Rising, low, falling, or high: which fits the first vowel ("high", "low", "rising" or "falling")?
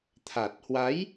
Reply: low